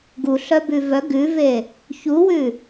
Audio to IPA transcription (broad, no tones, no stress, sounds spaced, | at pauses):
ɡ u ɬ œ b ʉ v œ ɡ ʉ v e | ç u w ʉ